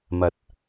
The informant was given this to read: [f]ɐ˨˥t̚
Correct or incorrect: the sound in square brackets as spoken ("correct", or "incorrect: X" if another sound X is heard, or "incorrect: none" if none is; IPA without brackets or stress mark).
incorrect: m